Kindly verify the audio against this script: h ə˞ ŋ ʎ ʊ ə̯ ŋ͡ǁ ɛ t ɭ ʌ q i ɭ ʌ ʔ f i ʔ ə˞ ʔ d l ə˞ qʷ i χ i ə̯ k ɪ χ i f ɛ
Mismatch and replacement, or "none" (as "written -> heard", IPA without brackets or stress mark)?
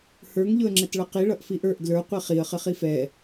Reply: k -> χ